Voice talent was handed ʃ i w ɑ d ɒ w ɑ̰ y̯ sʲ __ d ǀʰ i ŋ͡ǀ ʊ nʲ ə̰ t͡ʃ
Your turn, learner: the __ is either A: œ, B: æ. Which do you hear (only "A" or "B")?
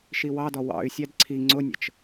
B